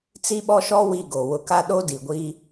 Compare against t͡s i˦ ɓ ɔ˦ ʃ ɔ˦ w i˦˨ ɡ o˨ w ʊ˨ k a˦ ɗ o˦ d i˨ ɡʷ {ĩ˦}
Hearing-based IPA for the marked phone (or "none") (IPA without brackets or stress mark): i˦